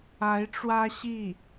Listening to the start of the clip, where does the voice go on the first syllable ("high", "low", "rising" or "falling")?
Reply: rising